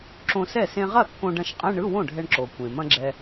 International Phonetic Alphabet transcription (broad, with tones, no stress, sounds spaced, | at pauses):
ǁ õ˧ s ɛ˥˩ s ẽ˧ ʁ ɐ˥˩ kː õ˧ ɖ ɐ̃˧ ʃ qʼ ɛ̃˧˥˧ ɳ ɯ˧˥˧ w õ˥˩ ɖʱ ɛ˧ ɳ ǁ o˩ kʷ ẽ˩ m ɐ̃˧ ɡ͡ǁ ɛ˧